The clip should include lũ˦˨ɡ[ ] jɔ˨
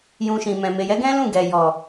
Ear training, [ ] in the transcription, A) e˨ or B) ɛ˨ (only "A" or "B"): B